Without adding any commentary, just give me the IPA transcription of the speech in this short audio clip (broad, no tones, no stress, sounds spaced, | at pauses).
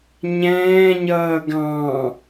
ɲ ɛ̃ː ɲ ʌː ɡ ɑ̃